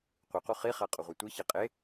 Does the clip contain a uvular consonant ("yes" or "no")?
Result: yes